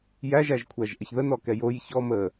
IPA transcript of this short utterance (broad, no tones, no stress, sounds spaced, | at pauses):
j æ ʒ æ ʒ kʷʰ æ ʒ ʔ ə ç ð ə n ɔ k ɛ j o j ç ɔ m ə